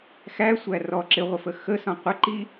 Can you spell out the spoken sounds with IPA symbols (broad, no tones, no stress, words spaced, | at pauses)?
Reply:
xæsʷæ rɔ ǁɪʁʷɪfə xəsɔ̃ qʷəǃi